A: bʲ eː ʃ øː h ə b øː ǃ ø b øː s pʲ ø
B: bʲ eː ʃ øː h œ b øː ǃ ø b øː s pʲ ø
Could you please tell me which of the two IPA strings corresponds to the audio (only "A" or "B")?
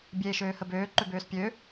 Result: A